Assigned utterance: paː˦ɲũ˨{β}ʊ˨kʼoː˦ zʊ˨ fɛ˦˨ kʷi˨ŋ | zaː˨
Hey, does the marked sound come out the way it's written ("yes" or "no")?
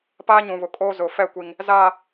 yes